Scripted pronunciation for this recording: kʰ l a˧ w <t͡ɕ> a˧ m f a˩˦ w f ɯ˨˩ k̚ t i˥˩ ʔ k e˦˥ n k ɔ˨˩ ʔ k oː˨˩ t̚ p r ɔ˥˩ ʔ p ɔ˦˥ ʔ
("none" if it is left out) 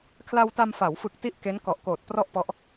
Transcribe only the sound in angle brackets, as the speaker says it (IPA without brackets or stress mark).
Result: t